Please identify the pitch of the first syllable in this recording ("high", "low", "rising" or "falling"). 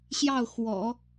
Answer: falling